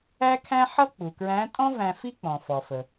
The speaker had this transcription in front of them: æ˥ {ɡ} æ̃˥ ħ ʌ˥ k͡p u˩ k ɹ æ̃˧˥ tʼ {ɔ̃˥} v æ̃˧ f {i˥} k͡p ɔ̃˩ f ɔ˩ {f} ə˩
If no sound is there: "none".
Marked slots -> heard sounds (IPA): kʰ, ɔ̃˥, i˥, f

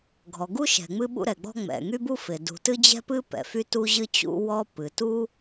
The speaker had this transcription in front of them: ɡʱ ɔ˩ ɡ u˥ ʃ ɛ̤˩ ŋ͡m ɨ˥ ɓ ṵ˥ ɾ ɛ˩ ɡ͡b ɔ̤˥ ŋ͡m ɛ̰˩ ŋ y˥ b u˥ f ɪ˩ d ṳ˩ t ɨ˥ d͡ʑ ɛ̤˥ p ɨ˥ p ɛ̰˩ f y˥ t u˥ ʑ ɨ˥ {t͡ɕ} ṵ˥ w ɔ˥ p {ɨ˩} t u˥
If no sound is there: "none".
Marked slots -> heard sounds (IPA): t͡ɕ, ɨ˩

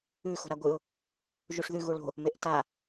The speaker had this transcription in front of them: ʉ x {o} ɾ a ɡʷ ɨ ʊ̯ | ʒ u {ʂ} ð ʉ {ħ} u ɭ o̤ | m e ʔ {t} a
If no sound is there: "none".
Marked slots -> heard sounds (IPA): o̤, ʂ, ɣ, t

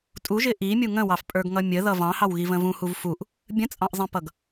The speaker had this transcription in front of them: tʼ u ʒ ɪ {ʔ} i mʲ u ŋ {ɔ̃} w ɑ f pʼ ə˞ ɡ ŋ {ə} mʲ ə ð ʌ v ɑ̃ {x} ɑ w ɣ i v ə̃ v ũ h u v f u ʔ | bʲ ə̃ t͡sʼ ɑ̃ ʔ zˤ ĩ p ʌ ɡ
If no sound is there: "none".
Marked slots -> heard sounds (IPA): ʔ, ə̃, ʌ, h

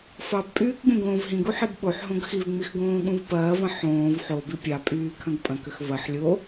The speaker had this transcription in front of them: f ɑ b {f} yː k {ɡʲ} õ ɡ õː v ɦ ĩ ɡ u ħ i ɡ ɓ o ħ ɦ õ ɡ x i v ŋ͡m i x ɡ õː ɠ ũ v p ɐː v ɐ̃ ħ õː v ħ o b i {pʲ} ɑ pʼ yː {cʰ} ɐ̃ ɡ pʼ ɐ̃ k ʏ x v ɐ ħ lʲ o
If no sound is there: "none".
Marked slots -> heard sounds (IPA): pʼ, ɡʲ, pʲ, kʰ

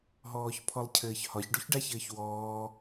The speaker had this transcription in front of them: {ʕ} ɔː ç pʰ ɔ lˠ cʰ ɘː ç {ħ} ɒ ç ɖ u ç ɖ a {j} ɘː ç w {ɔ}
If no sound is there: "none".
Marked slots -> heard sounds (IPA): ɦ, h, ç, ɔː

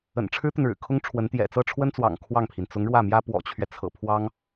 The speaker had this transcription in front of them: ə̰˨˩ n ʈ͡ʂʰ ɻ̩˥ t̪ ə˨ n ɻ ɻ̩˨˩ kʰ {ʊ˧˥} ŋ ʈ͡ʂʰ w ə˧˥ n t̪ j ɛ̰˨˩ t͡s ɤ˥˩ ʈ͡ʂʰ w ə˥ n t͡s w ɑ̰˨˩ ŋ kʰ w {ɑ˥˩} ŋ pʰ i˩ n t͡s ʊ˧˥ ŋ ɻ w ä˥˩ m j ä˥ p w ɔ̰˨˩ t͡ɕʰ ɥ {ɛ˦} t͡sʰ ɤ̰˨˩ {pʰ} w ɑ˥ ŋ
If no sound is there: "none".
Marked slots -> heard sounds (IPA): ʊ˥, ɑ˥˩, ɛ˦, pʰ

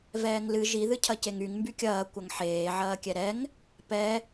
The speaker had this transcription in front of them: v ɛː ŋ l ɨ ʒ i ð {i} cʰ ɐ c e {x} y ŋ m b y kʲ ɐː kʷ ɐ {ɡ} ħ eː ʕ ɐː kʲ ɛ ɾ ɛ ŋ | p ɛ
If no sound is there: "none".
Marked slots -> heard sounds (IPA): ɨ, ŋ, ŋ

